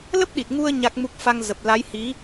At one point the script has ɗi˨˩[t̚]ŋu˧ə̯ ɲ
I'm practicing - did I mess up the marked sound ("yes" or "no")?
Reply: no